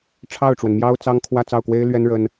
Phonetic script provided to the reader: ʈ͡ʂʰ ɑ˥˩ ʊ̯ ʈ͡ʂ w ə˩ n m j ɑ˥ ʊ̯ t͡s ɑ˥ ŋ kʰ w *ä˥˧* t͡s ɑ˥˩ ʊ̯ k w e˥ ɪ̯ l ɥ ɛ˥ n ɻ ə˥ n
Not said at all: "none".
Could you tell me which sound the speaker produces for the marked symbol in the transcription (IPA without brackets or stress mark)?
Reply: ä˥˧